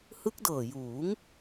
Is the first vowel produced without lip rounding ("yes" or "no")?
yes